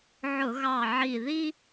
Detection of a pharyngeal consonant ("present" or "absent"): present